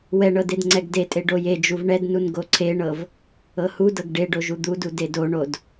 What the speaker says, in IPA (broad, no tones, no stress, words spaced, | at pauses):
wɛɳɤ dedŋ͡ǀɛɡdetʼe ɖojed͡ʒuv ɳɛdnun ɡoǀʰeɳɤv | ɤhudɤɡ ɖeɖo ʒud̪udu dedoɳod